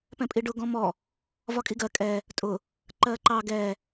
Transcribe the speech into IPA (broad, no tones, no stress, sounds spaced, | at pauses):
p ɛ̃ pʼ i ɖ ʊ ɡ ɔ̃ m ɔ | v ɒ kʼ i ɡ ɜ kʼ ɛ | tʼ ʊ | ǃ ɜ ǃ ɑ ɡ ɛ